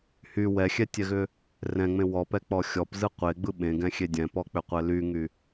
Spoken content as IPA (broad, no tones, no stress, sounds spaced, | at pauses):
h y w ɛ xʲ ɛ tʲ ɛ ɣ ʏ | r ɛ̃ ŋ͡m ẽ w ɔ p ɛ k͡p ɔ xʲ ɔ p z ɯ qʷ e ɡ͡b ɯ ɓ ẽ ɡ ɛ̃ xʲ e dʲ ɛ̃ p ɔ k͡p ʏ qʷ ɛ l y ŋ y